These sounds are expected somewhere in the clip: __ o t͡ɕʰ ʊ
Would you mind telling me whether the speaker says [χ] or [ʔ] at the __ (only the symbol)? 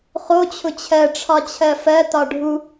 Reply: χ